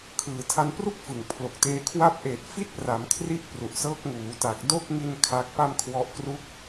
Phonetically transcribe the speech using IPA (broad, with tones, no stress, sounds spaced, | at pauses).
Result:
kʰ ɯː˨˩ tʰ a˧ n p r u˥˩ k̚ f ɯ˨˩ ŋ pʰ l o˨˩ k̚ t eː˧ kʰ w a˥˩ p̚ ʔ eː˨˩ t̚ f i˥˩ t̚ p r a˩˦ m kʰ r i˦˥ ʔ p r u˨˩ ʔ s ɤː˦˥ k̚ ŋ uː˩˦ t a˨˩ k̚ d o˥˩ k̚ ŋ i˧ n kʰ a˦˥ k̚ p a˥˩ m kʰ w ɔ˦˥ ʔ k r u˦˥ k̚